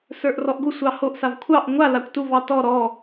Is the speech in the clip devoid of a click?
yes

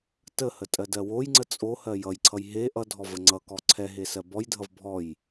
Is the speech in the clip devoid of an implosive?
yes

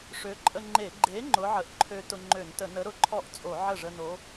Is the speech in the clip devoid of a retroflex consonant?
no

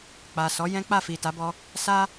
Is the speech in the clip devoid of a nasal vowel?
no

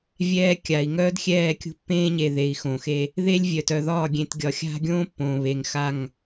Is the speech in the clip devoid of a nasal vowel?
no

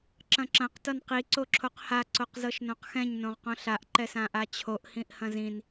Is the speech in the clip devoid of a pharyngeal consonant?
yes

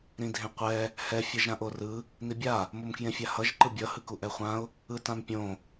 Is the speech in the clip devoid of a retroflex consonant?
yes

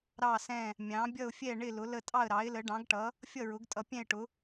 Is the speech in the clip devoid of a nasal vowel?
no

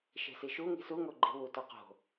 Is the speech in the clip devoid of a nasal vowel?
yes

